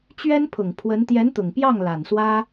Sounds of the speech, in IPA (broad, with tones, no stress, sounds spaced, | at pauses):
t͡ɕ ɥ ɛ˥ n pʰ ʊ˨˩ ŋ pʰ w ə˧˥ n t̪ j ɛ˧˥ n t̪ ʊ˨˩ ŋ p j ɑ˥˩ ŋ l a˨˩ n s w ä˥